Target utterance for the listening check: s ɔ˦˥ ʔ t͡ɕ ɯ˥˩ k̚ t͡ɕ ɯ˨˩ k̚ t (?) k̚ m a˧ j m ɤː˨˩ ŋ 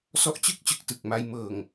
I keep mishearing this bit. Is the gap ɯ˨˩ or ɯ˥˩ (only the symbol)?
ɯ˨˩